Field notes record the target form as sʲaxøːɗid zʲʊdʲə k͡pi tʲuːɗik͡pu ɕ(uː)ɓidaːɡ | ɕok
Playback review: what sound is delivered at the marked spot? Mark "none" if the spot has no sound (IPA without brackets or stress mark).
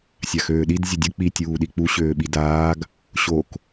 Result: øː